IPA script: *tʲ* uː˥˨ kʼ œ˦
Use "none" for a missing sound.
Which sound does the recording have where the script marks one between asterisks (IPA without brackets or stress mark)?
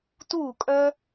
t